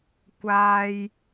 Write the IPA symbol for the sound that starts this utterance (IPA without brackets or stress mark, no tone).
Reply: kʷ